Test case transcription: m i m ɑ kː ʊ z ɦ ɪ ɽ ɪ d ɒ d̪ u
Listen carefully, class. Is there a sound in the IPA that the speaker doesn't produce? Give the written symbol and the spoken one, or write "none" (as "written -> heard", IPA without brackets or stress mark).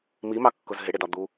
none